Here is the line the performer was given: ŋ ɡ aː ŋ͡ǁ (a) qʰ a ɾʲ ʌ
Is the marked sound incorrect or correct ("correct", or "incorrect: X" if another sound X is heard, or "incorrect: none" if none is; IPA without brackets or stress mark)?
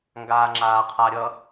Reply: incorrect: aː